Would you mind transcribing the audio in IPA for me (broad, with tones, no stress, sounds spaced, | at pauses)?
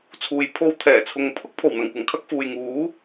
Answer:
t͡sʰ uː˨ j pʰ o˧ w t̪ʰ ɛː˨˩ t͡sʰ ʊ˨ ŋ pʰ ʊ˥ k̚ pʰ o˨˩ w n̪ ɐ˨˩ ŋ kʷ ɐ˨˩ ŋ kʰ ɐ˥ k̚ f uː˨ j ŋ uː˨˥